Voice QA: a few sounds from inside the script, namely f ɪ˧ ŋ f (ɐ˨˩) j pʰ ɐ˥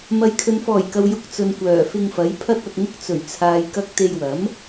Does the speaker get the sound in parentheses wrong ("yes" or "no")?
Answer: yes